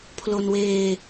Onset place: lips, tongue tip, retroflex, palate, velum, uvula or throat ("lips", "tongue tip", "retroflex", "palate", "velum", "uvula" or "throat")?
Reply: lips